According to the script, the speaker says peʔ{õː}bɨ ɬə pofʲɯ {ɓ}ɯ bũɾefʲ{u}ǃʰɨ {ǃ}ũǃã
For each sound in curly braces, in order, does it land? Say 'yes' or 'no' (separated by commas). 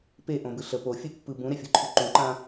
no, no, yes, yes